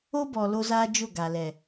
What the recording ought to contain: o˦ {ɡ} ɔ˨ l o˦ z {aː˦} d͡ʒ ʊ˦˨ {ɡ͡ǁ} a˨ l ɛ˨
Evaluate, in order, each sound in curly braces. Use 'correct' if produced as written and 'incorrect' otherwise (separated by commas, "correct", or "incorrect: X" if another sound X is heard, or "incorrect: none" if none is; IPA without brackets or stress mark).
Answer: incorrect: b, correct, incorrect: ɡ